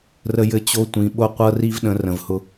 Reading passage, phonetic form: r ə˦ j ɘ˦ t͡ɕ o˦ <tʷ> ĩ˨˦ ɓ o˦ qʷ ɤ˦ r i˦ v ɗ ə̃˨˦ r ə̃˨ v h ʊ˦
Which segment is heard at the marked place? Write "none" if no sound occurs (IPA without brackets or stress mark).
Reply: tʷ